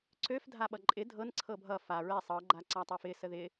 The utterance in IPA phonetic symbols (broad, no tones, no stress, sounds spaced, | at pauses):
ǀ ø f dʱ a ɓ ʌ ǃʼ ɪ dʱ ɤ n ǀʰ ɤ bʱ ʌ f a ɹ ɛ sˤ ɤ ɡ͡ǃ a ǀ a tˤ ø f ɪ s ə ð ɪ